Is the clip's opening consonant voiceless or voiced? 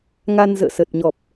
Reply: voiced